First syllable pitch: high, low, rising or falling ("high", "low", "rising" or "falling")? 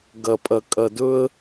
low